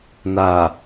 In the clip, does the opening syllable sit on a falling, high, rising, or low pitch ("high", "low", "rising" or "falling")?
low